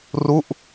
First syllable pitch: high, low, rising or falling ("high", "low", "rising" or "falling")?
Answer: falling